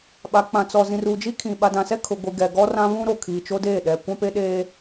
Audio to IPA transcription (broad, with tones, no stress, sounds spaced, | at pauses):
ɓ a˨ k͡p ã˨ t͡s ɔ˨ z ĩ˨ r u˨ d͡ʒ i˦ kʰ ĩ˨ ɓ a˨ d ã˨ s ɛ˦ kʰ ʊ˨ ɡʷ i˨ ɡ ɛ˨ ɡ ɔ˦ r ã˦ β ũ˦ ɾ o˨ kʰ iː˨ t͡ʃ o˦ d eː˦˨ ɗ ɛ˨ kʷ ã˦ p e˦ ɗ eː˦